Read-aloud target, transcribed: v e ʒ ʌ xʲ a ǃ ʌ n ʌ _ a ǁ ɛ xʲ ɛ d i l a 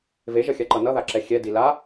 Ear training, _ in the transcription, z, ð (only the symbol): ð